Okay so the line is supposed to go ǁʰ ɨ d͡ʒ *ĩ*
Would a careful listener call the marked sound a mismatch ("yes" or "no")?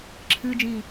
no